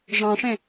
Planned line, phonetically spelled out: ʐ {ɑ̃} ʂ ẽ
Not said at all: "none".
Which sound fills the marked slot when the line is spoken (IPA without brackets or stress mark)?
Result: ɑ̃